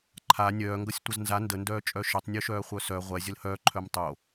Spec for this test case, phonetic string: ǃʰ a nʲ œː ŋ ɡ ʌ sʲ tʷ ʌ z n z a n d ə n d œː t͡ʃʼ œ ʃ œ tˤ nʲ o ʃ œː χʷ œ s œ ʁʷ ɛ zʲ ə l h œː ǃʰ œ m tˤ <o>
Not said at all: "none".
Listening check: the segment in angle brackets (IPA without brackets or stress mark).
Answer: o